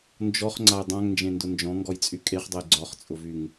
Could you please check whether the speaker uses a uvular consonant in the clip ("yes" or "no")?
yes